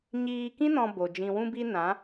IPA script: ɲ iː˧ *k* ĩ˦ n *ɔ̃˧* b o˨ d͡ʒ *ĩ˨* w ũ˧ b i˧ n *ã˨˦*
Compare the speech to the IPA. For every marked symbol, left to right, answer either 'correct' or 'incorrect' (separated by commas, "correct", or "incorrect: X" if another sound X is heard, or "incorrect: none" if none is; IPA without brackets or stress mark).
correct, correct, correct, correct